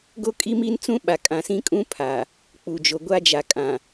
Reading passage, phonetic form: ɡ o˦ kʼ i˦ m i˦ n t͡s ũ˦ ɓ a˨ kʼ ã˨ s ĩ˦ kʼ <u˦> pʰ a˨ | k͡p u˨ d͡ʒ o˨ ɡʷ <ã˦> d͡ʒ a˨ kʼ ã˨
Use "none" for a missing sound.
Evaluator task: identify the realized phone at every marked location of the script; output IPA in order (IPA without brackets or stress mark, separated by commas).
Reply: ũ˦, a˦